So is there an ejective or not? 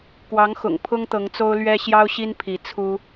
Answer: no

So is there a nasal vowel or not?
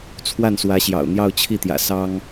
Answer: no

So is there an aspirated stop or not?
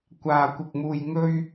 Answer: no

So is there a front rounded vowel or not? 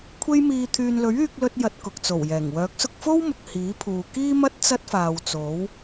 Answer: yes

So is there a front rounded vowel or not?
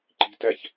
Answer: no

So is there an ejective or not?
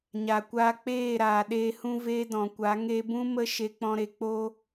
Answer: no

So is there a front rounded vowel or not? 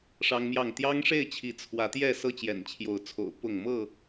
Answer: no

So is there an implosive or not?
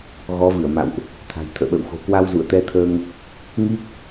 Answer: yes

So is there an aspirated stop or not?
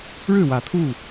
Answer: yes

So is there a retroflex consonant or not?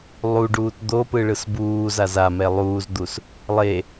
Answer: yes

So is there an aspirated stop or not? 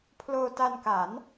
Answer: yes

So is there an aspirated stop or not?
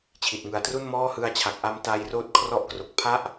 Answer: yes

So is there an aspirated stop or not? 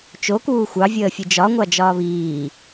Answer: no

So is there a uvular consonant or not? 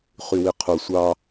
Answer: yes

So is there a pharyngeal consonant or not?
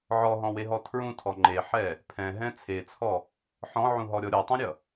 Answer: yes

